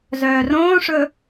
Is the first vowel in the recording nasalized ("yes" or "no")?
no